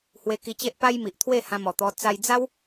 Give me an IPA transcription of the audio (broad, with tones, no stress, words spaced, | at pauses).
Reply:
hwe˧ki˧t͡ɕe˦ʔ pa˦jmi˨ʔt̪ʰwe˥˧ hã˧mɔ˨˩t̪ɔ˧ t͡sa˧jd͡za˦w